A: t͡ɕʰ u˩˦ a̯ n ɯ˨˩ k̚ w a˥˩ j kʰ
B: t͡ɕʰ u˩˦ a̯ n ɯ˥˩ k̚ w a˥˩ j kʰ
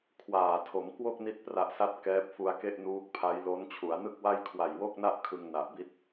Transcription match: B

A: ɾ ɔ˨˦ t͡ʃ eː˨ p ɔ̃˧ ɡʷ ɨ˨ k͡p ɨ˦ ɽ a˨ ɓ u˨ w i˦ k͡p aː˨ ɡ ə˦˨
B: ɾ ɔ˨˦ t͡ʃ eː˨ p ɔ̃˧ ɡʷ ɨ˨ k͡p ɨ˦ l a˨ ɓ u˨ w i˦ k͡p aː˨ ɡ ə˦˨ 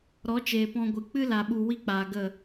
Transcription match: B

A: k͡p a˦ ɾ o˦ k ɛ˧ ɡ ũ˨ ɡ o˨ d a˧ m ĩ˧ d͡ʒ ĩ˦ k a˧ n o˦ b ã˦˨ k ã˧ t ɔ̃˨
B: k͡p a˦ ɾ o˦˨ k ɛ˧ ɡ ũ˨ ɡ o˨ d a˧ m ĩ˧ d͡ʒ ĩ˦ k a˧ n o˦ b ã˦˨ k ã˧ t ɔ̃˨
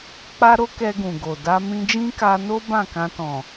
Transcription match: A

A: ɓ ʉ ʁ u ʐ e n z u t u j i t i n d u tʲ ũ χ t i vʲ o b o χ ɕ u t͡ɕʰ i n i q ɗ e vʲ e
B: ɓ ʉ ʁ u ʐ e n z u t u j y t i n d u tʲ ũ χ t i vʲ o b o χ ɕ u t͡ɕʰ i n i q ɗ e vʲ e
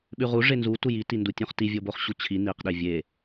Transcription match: A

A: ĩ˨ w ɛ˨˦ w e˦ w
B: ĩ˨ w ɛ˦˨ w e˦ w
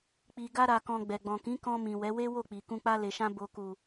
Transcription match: A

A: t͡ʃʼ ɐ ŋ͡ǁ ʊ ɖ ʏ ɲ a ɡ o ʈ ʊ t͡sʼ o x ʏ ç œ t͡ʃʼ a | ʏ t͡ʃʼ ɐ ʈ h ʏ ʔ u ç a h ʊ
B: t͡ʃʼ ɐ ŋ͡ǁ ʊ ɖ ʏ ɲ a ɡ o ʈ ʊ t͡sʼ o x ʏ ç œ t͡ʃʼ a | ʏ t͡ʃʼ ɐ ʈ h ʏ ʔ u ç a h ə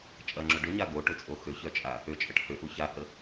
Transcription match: B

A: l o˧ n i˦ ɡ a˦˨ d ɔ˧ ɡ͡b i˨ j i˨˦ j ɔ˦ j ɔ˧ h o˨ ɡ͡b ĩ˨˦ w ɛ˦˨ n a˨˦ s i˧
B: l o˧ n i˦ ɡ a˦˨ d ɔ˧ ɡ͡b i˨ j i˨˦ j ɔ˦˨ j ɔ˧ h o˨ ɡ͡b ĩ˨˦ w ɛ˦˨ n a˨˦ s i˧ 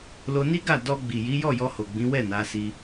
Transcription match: B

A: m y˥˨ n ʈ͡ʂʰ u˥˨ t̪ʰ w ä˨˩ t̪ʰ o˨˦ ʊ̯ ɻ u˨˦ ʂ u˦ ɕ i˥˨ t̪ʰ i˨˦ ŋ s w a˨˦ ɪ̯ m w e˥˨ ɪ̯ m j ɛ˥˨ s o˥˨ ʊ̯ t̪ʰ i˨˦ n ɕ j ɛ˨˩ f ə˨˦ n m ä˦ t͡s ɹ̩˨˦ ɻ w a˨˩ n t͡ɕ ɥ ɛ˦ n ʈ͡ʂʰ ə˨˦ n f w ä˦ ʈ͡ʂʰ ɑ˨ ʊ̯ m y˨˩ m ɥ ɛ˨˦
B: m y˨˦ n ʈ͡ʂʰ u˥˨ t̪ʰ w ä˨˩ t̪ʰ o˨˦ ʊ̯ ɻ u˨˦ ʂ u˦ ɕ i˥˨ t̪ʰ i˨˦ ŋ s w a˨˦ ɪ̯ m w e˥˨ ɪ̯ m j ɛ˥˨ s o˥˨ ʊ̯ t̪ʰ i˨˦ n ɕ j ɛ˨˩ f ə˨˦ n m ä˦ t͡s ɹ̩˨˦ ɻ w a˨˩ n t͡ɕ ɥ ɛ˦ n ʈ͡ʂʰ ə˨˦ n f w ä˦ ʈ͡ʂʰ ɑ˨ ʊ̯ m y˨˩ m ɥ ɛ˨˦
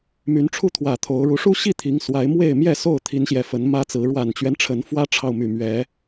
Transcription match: B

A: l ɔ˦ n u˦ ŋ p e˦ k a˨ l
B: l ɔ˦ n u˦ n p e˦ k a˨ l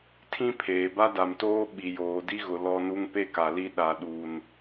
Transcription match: A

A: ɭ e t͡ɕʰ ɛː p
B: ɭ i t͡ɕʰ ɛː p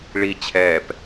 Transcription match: B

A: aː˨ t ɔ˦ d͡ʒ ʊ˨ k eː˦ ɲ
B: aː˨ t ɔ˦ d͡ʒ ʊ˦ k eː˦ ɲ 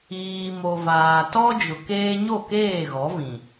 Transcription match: A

